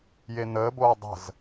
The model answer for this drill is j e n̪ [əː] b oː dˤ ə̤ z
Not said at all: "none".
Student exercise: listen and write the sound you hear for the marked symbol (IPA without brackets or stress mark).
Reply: əː